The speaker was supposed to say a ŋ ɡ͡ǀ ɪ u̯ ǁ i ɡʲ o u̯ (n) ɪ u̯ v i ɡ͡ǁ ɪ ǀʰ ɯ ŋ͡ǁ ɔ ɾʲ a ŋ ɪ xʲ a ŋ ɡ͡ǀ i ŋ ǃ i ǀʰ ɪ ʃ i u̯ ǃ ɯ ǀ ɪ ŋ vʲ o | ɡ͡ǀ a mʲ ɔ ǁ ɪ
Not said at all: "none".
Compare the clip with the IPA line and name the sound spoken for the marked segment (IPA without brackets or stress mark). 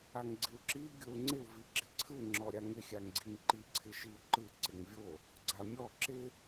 ŋ͡ǀ